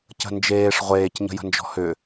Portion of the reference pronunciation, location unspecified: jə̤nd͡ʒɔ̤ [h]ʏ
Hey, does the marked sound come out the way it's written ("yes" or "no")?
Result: yes